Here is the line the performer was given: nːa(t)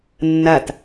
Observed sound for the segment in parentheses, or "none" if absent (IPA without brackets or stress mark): t